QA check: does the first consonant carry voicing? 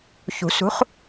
no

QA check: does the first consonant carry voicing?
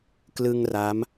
no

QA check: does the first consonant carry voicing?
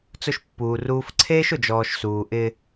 no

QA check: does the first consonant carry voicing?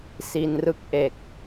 no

